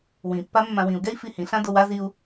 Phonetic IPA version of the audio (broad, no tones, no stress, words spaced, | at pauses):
wĩpːa mːãwĩu̯ɡɛi̯ fihĩɬã dowa ziu̯